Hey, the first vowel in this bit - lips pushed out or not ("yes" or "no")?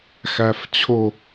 no